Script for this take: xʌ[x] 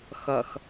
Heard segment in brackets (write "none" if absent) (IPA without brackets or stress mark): x